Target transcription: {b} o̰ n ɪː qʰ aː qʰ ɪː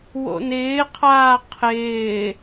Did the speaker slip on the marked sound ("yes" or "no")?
yes